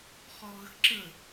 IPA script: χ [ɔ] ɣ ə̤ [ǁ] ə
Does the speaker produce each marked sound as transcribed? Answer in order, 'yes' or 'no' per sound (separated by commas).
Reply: yes, yes